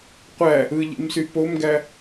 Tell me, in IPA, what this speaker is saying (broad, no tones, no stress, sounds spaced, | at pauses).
qʷ æ | ɯ ʎ ḭ m s y p o m ɡ æ